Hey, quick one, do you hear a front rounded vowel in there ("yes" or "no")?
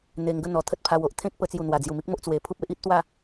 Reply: no